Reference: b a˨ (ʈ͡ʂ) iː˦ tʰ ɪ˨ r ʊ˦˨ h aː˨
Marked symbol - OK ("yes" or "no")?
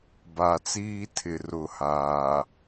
no